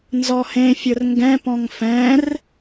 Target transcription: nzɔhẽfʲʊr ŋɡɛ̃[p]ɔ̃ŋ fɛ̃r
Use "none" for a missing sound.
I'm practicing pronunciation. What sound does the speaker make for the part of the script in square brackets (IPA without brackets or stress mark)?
p